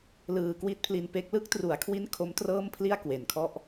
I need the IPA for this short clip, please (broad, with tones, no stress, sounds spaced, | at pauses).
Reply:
l ɯː˧ k w i˦˥ t̚ pʰ l i˧ n p e˦˥ k̚ l ɯ˦˥ k̚ t r u˩˦ a̯ kʰ w i˦˥ n kʰ o˦˥ m t r ɤː˥˩ m pʰ l i˥˩ a̯ k w e˨˩ n kʰ ɔ˥˩ ʔ